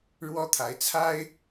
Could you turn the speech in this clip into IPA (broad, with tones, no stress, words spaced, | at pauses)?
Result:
ɻwɔ˦t̪ʰa˨˦ɪ̯t͡sʰa˦ɪ̯